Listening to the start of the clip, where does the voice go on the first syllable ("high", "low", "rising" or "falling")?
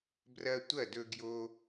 high